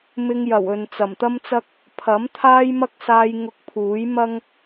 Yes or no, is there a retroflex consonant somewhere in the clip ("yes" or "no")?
no